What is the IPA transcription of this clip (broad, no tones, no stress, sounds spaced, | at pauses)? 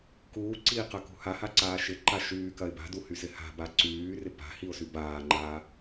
k uː ǀ iː q ɐ k ṳ h a h a ǀ aː ʃ ɪ ǃ a ʃ yː k ɐ ɪ̯ b a̤ d u h y s ɪ h a̤ b a ǀ yː r ɪ p a̤ h i ʊ̯ s y b aː ŋ͡ǃ aː